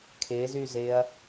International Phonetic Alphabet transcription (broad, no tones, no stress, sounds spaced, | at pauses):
kʰ ɪː z yː z ɪː ɐ̯